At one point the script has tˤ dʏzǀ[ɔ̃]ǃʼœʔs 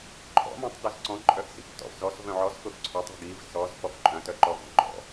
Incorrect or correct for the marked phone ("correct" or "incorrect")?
correct